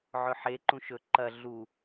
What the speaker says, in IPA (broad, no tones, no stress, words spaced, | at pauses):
ʕɵħe ǃũʃɵ ǃɐ ɮu